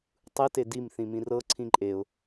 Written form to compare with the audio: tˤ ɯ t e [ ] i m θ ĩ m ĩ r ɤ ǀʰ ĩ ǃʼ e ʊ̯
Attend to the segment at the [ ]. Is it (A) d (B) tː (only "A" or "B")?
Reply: A